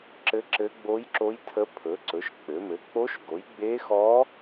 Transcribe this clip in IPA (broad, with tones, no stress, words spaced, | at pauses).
ǁɘ˧˥ǁɘ˧˥ ɡ͡bo˧˥jǁo˧˥j tʰə˧˥pʰɵ˩˥ ǀɵ˩˥ʃ k͡pɘ˩˥ mɘ˩˥k͡po˧˥ʃɡo˩˥j ɡ͡be˧˥xɔ˧˥